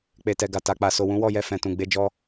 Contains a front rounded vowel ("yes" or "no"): no